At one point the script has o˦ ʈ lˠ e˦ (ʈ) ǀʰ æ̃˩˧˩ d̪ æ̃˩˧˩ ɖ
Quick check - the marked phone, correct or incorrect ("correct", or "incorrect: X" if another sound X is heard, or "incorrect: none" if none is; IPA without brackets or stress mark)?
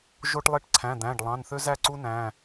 correct